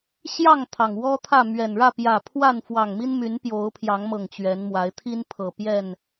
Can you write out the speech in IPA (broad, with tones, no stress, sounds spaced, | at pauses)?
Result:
ɕ j ɑ˥˨ ŋ t̪ʰ ɑ˩ ŋ w ɔ˦ t̪ʰ ä˥˨ m ɥ ɛ˨˩ n ɻ ä˥˨ p j ä˨˩ pʰ w a˥˨ n f w ɑ˨˩ ŋ m i˦ n m y˨˦ n p j o˨˦ ʊ̯ pʰ j ɑ˨˦ ŋ m ɤ˨˩ ŋ t͡ɕ ɥ ɛ˨˦ n m w a˨˦ ɪ̯ t̪ʰ i˦ n pʰ ɤ˨˩ p j ɛ˥˨ n